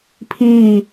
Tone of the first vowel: falling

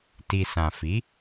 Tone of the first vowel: low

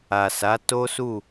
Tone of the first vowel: low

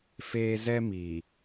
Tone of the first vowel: high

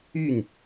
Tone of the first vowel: falling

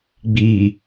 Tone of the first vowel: low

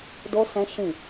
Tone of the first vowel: high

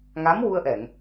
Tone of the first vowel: rising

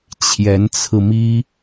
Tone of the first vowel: rising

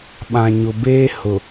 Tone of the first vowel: low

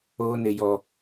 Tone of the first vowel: high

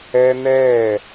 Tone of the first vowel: high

